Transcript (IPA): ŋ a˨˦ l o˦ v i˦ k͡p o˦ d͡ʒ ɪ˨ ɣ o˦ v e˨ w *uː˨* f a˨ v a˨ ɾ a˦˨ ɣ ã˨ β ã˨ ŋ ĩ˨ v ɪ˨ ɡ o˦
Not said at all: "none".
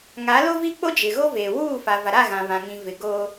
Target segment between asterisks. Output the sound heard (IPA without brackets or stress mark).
uː˦˨